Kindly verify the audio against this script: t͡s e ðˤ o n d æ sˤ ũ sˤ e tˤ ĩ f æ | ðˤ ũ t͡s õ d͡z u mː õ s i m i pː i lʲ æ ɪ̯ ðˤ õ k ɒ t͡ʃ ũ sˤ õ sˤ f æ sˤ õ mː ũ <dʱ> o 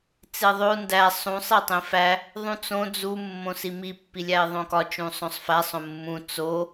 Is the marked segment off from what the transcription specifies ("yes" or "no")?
yes